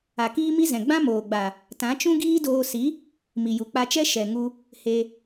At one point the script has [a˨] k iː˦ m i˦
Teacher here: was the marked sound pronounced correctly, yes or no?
yes